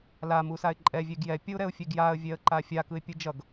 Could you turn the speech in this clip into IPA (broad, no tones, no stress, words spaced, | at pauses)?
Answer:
la musaɪ̯ǃʼɛ vʲeɡjɛ pʲʌʊ̯ɾɛʊ̯fʲeɡjaə̯ vʲɛə̯ǃafʲa kɯɪ̯pʲɯd͡ʒʌɡ